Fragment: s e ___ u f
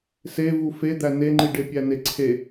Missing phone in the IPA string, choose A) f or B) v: B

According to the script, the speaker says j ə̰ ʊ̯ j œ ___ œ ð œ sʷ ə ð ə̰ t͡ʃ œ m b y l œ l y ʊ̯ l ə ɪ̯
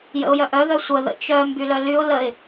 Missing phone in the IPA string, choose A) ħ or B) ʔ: B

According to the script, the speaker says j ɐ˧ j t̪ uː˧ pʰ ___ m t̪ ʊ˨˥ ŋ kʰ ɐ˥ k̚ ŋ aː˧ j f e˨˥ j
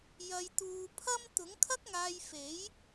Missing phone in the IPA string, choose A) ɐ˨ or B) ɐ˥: B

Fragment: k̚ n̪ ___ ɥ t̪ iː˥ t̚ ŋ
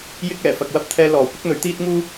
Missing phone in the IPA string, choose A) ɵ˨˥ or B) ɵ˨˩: A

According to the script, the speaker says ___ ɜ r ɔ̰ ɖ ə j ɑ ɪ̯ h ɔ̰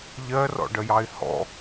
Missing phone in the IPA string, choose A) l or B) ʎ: B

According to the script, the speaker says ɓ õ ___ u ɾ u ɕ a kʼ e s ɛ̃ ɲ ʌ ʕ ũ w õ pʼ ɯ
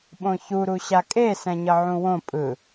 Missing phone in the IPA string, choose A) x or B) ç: B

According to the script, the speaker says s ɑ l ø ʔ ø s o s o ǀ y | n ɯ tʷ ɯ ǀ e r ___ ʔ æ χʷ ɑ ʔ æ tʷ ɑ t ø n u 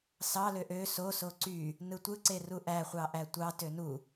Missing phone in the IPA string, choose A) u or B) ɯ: A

